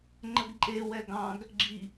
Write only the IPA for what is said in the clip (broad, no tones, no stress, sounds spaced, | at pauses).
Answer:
ŋ͡ǃ ə ɡ ǃʼ e w ɛ ɡ ɑ̃ ɡ | ɡ͡ǁ i